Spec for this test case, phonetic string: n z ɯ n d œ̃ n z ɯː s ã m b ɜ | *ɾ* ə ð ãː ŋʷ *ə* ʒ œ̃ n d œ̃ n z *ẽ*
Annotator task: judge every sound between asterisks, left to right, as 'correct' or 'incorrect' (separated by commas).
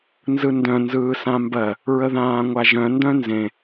incorrect, incorrect, correct